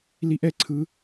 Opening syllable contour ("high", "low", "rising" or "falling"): high